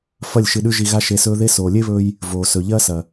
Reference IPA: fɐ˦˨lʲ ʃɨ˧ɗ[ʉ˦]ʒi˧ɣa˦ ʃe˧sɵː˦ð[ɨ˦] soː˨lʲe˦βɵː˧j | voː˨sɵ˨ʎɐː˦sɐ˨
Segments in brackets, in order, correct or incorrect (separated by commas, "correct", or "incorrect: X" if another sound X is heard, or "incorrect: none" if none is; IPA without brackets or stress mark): correct, incorrect: e˦